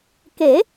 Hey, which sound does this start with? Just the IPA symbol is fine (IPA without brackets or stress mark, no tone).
k